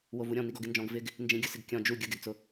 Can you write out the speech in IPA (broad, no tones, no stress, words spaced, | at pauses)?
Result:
wovuɾʲɔ̃ niɡɔɡɪnd͡ʒɔ̃ɡ vɪɡ | nd͡ʒĩɡʲʊsɪɡ kʲɔ̃ d͡ʒu ɡʲʊɡɛɡt͡sʊ